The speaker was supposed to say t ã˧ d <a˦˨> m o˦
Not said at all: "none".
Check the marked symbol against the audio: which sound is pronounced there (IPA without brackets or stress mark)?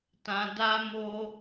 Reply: a˦